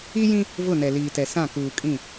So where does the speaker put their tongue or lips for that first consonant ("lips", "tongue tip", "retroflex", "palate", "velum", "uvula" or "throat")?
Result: palate